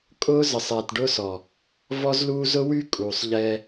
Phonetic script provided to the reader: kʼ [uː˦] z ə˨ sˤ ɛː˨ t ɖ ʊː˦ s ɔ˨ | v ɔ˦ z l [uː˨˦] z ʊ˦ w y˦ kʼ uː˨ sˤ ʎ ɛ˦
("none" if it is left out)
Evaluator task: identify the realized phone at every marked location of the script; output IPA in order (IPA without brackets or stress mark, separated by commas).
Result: ʊː˦, uː˦